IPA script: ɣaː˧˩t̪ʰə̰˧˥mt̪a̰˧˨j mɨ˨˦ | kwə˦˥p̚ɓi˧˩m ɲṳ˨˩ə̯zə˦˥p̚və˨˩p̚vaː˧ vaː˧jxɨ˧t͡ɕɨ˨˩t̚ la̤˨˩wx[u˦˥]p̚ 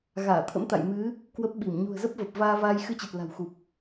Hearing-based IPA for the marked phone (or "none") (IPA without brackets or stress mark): u˨˩